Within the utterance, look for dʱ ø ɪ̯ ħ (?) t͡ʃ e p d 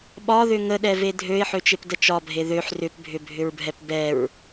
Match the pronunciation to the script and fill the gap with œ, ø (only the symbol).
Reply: ø